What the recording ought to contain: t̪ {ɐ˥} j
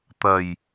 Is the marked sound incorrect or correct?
incorrect: ɐ˨˩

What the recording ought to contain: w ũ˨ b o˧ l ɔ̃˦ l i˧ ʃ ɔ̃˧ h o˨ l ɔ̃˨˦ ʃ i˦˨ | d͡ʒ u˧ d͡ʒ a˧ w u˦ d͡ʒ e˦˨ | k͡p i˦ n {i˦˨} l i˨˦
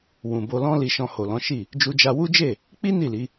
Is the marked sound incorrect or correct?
correct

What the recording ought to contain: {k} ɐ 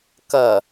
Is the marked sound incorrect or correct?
correct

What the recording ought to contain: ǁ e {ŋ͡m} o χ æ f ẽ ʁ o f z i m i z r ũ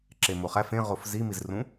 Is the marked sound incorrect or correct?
incorrect: m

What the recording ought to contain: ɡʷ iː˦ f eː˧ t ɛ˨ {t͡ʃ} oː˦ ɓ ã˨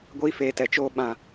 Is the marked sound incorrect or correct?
correct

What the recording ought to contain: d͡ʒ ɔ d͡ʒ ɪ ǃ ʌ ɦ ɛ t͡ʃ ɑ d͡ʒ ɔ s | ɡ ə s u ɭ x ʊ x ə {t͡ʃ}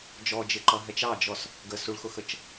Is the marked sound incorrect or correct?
correct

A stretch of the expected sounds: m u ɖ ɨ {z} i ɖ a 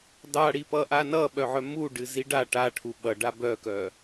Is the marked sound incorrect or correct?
correct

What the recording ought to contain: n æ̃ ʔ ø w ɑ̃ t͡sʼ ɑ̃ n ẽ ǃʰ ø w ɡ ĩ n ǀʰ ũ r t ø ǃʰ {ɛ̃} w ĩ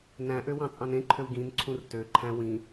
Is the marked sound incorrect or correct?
incorrect: æ̃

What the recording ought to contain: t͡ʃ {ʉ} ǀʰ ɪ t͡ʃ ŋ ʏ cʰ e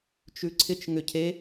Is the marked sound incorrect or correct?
correct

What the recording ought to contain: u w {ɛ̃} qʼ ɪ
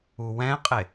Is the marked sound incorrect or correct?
correct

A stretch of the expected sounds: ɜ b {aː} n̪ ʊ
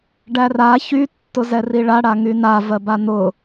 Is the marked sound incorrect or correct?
incorrect: a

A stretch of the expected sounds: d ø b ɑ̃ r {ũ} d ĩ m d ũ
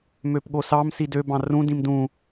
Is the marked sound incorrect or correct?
correct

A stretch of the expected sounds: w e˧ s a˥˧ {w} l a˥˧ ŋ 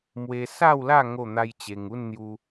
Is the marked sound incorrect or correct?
correct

